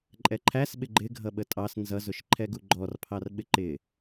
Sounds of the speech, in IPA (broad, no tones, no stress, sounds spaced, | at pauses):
ǃʼ ɛ ǃʰ æ s ɓ ɪ ɡ͡ǃ ɪ ɡʱ ʌ ɓ ə tʼ ɑ s n z ʌ z ʊ ʃ ǃʰ ɛ ɡ u ɡ͡ǃ ɔ r pʰ ɑ r ɓ ɪ ǃ ɪ